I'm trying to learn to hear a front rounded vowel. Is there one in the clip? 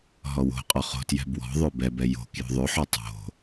yes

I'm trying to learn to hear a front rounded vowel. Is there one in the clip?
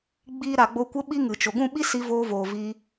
no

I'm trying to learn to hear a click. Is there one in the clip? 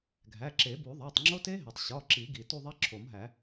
yes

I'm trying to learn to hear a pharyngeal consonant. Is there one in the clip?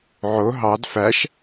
yes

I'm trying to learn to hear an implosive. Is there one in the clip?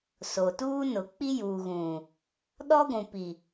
yes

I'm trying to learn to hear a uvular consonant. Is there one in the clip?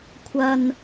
no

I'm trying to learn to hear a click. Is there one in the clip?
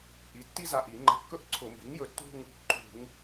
yes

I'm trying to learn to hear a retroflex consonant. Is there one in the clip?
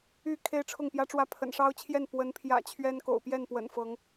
yes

